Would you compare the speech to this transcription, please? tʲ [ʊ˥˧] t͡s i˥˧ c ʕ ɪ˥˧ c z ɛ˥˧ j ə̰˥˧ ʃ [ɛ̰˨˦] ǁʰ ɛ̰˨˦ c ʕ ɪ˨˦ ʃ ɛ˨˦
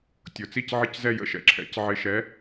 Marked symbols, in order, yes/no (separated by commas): no, yes